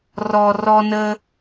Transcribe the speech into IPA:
r ɔ˨ r ɔ˧ n ə˧

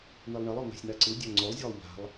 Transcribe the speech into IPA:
n̪ i lˠ ɳ e lˠ ɔ n̪ a̤ sʲ n̪ a ǀ ɯ dʲ a ŋ͡ǀ o lˠ zʲ ɔ lˠ ʎ a̤ lˠ

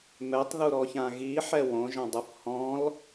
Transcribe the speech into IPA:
m ɛ tˤ ð u ɾ ɔ ç ã ɣ i ħ ɛ w õ ʒ ã dˤ ɯ f h ɔ̃ l

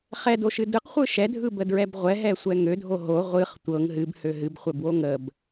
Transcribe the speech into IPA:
χ ɛ d o ʃ ɨ d ɯ q χʷ ɯ ʃ ɛ dʱ ɯ b ə d ɹ ɛ b ʁʷ ɛ ɦ ɛ sʷ ɛ ŋ ø dʱ o ɦ o ʁʷ ɨ χ tʷ ɤ ŋ ɦ ɨ b h ø ɦ ɨ b χʷ ɛ b w o ŋ ə b

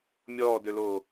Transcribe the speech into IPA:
mʲ ɔː d ø l oː

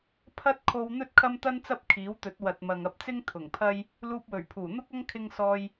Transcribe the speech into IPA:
pʰ ɐ˥ t̚ kʰ o˧ w n̪ ɵ˥ t̚ kʰ ɐ˥ m t̪ ɐ˥ n t͡s ɐ˥ p̚ kʰ iː˨˥ w t̪ ɵ˨˥ t̚ w ɐ˨ t̚ m ɐ˨ ŋ ɐ˧ p̚ t͡s ɪ˥ ŋ t̪ʰ ʊ˨˩ ŋ pʰ ɐ˥ j | l uː˧ p̚ w ɵ˨˩ ɥ pʰ uː˨˩ n̪ ʊ˥ k̚ ɐ˥ ŋ kʰ ɪ˧ ŋ s ɔː˧ j

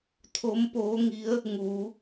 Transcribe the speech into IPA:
t̪ʰ o˧˥ m p oː˧˥ ŋ i˧˥ ə̯ | ŋ uː˩˧

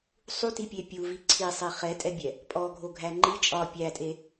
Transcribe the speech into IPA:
sˤ u t i pʲ e pʲ u v i ǀʰ i sˤ i χ ɛ tʼ ɛ bʲ ɛ | pʼ ɔ ɡʱ o ɡʱ æ ŋ͡ǃ i t͡ʃʼ ɒ pʲ æ tʼ e

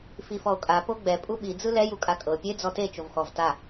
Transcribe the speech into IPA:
f i f ɔ o̯ kʼ a p o ɡ͡b ɛ pʼ u ɓ i d͡z ɯ l ɛ j u kʼ a kʼ ɤ pʲ e d͡z ɔ t e t͡ʃ o v x ɔ v t a

